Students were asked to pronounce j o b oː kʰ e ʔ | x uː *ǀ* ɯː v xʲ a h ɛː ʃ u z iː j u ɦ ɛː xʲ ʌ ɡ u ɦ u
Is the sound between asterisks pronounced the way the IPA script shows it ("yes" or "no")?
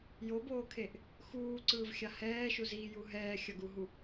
yes